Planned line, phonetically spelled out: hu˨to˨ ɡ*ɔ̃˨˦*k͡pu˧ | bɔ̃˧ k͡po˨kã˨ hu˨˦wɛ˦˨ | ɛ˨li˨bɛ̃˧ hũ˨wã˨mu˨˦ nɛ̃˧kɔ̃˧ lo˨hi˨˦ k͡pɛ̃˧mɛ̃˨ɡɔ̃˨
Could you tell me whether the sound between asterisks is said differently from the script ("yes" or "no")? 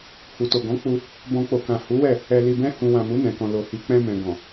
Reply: no